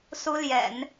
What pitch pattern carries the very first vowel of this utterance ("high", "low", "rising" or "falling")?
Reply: high